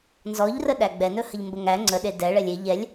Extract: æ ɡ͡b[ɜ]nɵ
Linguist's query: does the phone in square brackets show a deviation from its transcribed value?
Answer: yes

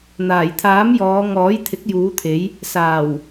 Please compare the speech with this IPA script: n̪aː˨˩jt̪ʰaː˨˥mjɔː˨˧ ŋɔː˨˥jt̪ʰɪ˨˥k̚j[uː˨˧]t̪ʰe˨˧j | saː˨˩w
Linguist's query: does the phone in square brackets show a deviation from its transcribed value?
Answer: no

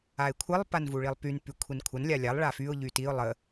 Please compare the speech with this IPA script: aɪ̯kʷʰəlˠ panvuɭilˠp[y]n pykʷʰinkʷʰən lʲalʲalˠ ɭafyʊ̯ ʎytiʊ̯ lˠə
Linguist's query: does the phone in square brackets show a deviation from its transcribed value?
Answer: no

